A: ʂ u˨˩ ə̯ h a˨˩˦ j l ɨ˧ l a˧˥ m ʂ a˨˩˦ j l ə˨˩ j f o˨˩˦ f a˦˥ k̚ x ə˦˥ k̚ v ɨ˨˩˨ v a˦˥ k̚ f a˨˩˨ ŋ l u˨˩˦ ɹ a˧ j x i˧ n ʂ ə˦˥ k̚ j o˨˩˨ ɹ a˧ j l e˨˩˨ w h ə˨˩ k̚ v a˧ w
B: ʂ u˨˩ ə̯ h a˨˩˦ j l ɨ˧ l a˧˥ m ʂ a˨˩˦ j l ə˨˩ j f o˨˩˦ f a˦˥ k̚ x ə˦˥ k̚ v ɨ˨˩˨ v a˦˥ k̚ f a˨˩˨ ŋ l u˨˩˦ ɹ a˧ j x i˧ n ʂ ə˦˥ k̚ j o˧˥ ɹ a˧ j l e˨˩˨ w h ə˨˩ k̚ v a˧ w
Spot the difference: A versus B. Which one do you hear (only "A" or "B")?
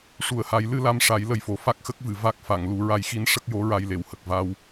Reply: B